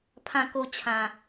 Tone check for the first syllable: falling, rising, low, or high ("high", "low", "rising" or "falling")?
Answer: low